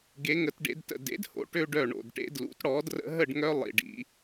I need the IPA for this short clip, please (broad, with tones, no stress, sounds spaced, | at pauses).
ɡ e˩˧ ŋ ə˩˧ t ɖ ḛ˩˧ d t ə̰˩ d ḛ˩˥ d h o̰˩˧ ʈ ø˦ ɖ œ˧˩ ɳ o̰˩ d ʈ ḛ˦ d l ṵ˩˥ t ɽ ɔ˩˥ d r ə̰˦ ɦ ə˥˨ ɖ ŋ œ˦ lˠ ḭ˩ ɖ ḭ˩˧